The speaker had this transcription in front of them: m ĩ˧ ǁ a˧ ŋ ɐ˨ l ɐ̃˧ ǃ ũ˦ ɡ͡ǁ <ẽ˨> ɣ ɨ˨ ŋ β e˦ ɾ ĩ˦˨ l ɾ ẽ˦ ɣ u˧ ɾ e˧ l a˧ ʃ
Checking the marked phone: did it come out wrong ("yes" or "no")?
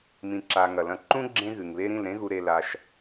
yes